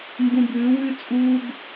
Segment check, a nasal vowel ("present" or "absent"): present